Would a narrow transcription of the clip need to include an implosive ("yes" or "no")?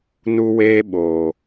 yes